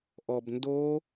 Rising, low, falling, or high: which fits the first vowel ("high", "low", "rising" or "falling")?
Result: low